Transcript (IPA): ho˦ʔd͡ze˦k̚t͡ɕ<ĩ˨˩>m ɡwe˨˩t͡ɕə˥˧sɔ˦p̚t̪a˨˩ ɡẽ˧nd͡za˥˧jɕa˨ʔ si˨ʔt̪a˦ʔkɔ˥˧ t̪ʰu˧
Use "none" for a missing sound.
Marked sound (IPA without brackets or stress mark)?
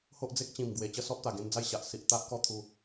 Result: ĩ˨˩